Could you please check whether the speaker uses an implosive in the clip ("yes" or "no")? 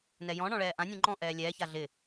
no